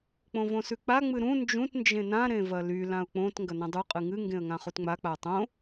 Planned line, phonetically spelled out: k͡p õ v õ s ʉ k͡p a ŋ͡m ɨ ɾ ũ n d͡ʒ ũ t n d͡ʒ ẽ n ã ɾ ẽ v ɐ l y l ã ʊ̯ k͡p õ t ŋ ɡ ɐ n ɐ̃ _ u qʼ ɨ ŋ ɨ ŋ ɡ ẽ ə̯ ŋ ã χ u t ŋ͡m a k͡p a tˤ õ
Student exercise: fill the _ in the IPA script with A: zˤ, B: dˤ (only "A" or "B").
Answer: B